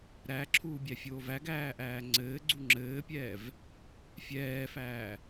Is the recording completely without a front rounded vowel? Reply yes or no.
yes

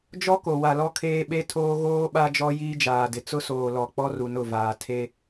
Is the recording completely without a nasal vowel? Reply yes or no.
yes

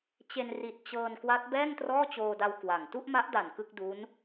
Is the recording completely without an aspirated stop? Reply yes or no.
yes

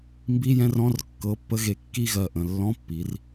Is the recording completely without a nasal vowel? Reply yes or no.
no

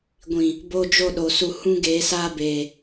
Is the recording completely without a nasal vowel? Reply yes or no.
no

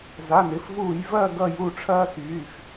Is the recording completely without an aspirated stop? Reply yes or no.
no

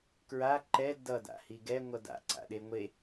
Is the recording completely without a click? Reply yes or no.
no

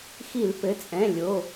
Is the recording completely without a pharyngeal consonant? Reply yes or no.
yes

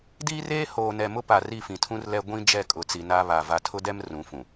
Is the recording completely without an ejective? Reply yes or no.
no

